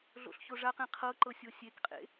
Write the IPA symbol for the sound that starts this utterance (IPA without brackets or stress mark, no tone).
ɮ